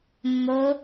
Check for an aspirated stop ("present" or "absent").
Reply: absent